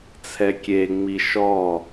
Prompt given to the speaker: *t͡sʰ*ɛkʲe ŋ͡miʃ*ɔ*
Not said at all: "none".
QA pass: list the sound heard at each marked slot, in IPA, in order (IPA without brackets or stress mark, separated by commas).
t͡sʰ, ɔ